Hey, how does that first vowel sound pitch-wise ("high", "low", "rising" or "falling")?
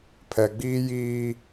low